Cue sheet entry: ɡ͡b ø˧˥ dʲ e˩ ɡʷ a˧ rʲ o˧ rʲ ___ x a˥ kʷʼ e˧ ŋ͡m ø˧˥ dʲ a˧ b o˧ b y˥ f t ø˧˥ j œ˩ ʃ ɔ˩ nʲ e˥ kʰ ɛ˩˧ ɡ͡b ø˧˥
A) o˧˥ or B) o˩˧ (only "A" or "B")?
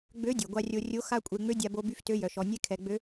A